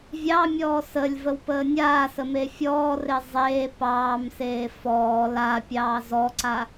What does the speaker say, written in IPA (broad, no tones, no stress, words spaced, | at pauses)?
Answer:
vʲɑmʲɔː səlʲvəwpəː nʲaːsəme fʲɔːre zˤeː pɑːmseː fɔː laːpʲɑː zɔǀa